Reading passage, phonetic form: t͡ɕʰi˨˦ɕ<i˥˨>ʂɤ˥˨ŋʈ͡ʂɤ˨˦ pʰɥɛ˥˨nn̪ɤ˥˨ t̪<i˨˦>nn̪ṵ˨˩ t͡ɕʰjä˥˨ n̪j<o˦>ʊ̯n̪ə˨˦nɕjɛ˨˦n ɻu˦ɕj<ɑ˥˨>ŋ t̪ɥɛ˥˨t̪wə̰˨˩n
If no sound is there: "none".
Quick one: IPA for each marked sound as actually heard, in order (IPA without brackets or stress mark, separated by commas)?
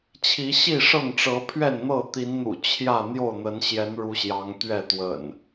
i˥˨, i˨˦, o˥˨, ɑ˨˦